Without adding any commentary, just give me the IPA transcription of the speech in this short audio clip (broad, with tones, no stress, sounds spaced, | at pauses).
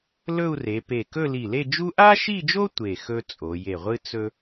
l ɵ˥˧ u̯ r e˩˧ p e˧˩ k ɵ˥˧ l i˧˩ l e˥˧ d͡ʒ u˥ ʔ a˥ ʃ i˥˧ d͡ʒ o˥ tʷ e˧˩ x ɵ˥ t͡sʼ o˩˧ j e˧˩ ʁʷ ɨ˥ t͡s ɵ˥